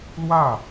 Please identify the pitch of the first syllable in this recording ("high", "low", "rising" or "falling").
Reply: falling